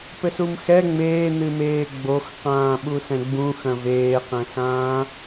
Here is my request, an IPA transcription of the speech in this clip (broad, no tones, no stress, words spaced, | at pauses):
pɘsumxɛ ŋ͡meːn̪ɨmeː ɡ͡boxqãː ɓusɛ̃ɡ͡bũ xɐ̃veːqɛ̃sãː